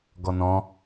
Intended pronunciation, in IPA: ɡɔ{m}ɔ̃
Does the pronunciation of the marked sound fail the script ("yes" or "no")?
yes